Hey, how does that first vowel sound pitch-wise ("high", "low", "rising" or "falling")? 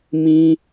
high